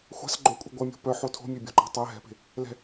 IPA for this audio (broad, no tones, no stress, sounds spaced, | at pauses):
xʷ a̤ s ɡ͡ǃ o kʷʼ e̤ ɡʷ ɐ mʲ o̤ p œ ħ o tʰ o̤ mʲ e bʲ o̤ ǃ a̤ tˤ ɛ ɦ ɛ̤ p e̤ | l ɛ̤